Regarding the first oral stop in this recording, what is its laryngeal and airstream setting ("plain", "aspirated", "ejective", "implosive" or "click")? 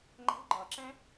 click